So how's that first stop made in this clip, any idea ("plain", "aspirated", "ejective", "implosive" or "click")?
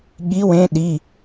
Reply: implosive